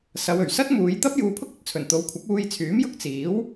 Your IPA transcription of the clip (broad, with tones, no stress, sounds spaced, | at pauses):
s ɐ˨˧ w ɵ˨˩ ɥ s ɐ˥ t̚ m uː˨˧ j t̪ ɐ˥ p̚ j uː˧ pʰ ʊ˥ k̚ ɵ˨ t̚ t͡sʰ ɵ˨˩ n t̪ o˨˥ w kʷʰ ɐ˨˥ p̚ uː˧ j t͡sʰ yː˨˥ m j ʊ˥ k̚ t͡s iː˨˥ w